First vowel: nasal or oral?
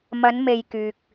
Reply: oral